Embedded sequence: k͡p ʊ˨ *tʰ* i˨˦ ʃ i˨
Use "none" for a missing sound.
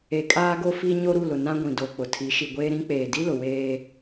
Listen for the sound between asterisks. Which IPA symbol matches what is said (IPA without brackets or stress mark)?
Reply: tʰ